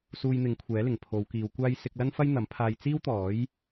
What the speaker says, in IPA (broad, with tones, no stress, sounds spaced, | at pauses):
s uː˧ j n̪ ɪ˨˧ ŋ kʷʰ ɛː˨˥ l ɪ˨˩ ŋ pʰ o˨˧ w k iː˨˧ w kʷ aː˥ j s ɪ˧ k̚ l ɐ˥ n f ɐ˥ j n̪ ɐ˨˥ m pʰ aː˧ j t͡s iː˥ w t̪ ɔː˨˥ j